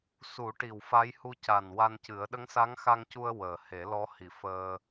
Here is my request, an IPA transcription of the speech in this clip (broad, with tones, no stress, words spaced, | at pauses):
su˨˩˦ʈi˨˩w fa˧˥jhu˧ ca˨˩n wa˧ncɨ˨˩˦ə̯ ɗə˧˥ŋsa˧˥ŋxa˧ŋcu˧ə̯ wəː˨˩ he˨˩˦lɔ˧˥hi˨˩ fəː˧